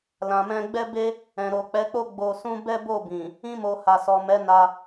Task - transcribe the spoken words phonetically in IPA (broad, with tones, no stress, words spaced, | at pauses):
lã˨mɛ̃˧ɡ͡bɛ˦ be˦ | ɛ̃˨ɾo˨k͡pɛ˨˦k͡po˦ ɡ͡bo˧sũ˦ bɛ˦bo˦˨bĩ˨ | ĩ˧mo˨ ha˨sɔ˨ mɛ˨˦ na˧